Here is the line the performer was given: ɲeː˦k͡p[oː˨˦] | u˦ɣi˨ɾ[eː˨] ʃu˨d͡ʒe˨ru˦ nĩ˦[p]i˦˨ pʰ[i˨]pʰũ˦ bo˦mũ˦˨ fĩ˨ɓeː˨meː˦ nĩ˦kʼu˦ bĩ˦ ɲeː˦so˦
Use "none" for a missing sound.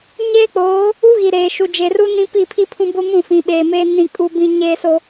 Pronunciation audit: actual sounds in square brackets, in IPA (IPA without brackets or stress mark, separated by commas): oː˨˦, eː˨, p, i˦